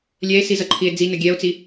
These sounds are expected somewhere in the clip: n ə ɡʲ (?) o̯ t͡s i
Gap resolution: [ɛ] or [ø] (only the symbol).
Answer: ɛ